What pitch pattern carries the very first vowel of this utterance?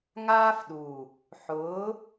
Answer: high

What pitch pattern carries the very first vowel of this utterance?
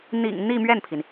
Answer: low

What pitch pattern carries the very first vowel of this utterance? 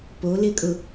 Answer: rising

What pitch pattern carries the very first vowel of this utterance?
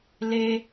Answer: high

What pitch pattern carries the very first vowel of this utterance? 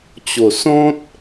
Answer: low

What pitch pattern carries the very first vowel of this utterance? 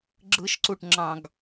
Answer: low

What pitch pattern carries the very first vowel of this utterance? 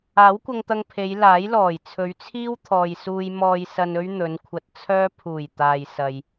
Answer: rising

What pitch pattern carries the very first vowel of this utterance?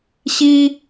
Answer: high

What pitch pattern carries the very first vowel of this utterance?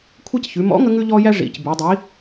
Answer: high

